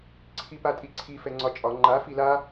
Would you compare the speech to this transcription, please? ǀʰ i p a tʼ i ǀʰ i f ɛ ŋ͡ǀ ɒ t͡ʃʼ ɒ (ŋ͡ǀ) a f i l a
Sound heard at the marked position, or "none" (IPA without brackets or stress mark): ŋ͡ǃ